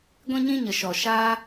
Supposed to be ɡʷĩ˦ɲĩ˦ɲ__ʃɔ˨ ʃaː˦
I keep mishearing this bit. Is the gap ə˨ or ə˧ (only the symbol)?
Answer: ə˨